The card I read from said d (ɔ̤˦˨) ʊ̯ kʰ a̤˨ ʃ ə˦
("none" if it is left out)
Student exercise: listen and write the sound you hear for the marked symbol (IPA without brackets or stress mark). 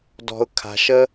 ɔ̤˨